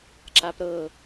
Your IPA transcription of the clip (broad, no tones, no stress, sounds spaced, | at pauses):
ǁ a p ɾ ɤ